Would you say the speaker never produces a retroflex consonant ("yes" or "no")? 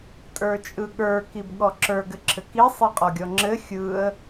yes